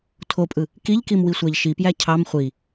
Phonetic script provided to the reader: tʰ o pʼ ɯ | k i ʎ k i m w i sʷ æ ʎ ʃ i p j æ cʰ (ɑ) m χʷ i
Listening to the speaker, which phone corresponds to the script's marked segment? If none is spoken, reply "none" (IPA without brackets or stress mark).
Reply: ɑ